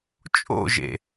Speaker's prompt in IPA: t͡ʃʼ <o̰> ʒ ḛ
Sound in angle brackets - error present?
no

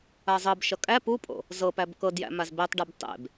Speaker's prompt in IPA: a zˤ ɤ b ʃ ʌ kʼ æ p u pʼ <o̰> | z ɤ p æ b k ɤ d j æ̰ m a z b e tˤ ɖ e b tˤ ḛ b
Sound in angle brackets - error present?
no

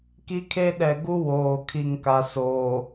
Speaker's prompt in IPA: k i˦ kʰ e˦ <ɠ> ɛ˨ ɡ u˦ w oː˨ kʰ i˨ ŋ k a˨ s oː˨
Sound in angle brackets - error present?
yes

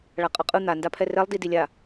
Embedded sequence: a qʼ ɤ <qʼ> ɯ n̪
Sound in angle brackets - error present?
no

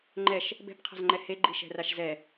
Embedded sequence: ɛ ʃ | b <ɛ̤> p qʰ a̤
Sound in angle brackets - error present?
no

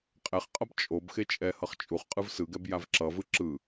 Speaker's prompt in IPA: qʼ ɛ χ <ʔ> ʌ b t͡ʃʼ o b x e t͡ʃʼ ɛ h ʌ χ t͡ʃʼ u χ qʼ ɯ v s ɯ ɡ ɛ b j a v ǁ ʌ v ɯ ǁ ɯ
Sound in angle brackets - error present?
yes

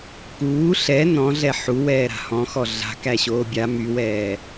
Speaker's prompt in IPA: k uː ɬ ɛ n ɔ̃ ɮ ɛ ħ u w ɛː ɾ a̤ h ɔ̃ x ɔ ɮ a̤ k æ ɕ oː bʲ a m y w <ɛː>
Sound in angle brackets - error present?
no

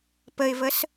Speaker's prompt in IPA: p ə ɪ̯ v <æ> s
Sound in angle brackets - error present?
yes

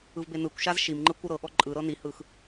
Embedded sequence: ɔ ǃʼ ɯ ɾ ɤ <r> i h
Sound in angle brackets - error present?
yes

